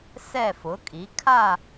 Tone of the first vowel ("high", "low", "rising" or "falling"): falling